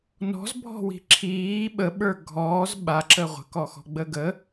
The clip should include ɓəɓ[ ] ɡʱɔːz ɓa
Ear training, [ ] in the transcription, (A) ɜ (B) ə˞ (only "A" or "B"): B